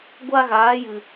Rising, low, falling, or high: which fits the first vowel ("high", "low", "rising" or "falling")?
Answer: high